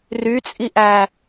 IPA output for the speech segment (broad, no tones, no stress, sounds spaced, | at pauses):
r y t͡sʼ i ʔ æ